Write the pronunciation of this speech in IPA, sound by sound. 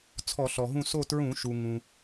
t͡sʰ ɔ˧˩˧ ɬ ɔ˩ ɦ ũ˦˨ s o˦˨ t ɹ ũ˧˩˧ ʃ u˩ ŋ ũ˩

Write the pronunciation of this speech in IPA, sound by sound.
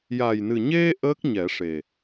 j a˨˩ j n ɨ˨˩ ɲ e˧ ʔ əː˦˥ k̚ ɲ ɛ˨˩˦ ʂ e˨˩

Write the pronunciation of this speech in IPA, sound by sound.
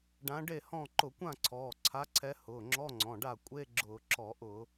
ɖ ã˨˥ ɖ e˥˩ h ɔ̃˥˩ ǃ ʊ˧˩˧ kʷ ã˥˩ ǀʰ ɔː˩˧˩ ǀʰ a˨˥ ǀʰ ɛ˨˥ h ʊː˩˧˩ ŋ͡ǁ ɔ˧˥˧ ŋ͡ǀ ɔ̃˩˧˩ ɖ a˥˩ kʷʼ e˧˥˧ ɡ͡ǁ ʊː˧˩˧ ǁ ɔ˧˩˧ ʔ ʊ˧˩˧

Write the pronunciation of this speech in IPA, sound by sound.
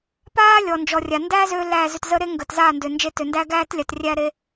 p aː˦ lʲ ɔ˨ n d͡ʒ ɔ˨ rʲ a˨ n d æ˦ z ø˧ l æ˦˨ z ʏ˧ t z ə˦ ɾ e˦ ŋ ɡ ə˨ t z aː˦˨ n d ʏ˨ n d͡ʒ e˧ t ø˨ n d æ˦ ɡ æː˦ t lʲ a˧ t rʲ æ˦ ɾ e˦

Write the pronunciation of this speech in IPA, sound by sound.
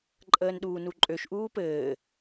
ǃʼ əː n ɗ uː n u ǃʼ ø ʃ ʔ uː p ɘː

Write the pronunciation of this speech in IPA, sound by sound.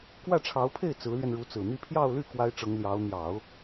k w ä˥˩ ʈ͡ʂʰ ɑ˧˥ ʊ̯ pʰ e˥˩ ɪ̯ t͡s ɹ̩˧˥ l ɥ ɛ˧ n ɻ u˧˥ t͡s ɹ̩˨˩ n̪ i˥ pʰ j ɑ˥˧ ʊ̯ l y˥˩ k w a˥ ɪ̯ ʈ͡ʂ ɤ˧˥ ŋ l j ɑ˧˥ ʊ̯ n̪ j ɑ˨˩˦ ʊ̯

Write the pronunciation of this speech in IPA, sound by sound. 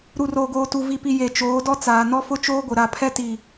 ɾ u˨ r oː˨ ɡ oː˨ t u˨ v i˨ p i˨ j e˨ t͡ʃ oː˨˦ d ɔ˦ t͡s aː˨ n ɔ˦ f ʊ˦ t͡ʃ oː˦ ɡʷ ɪ˨ ɾ a˨ pʰ ɛ˦ t i˨

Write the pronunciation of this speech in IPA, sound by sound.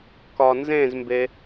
k ɒ n z ẽ z m b e

